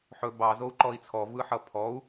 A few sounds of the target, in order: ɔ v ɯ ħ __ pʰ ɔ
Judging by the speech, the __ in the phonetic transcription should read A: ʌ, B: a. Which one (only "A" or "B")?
A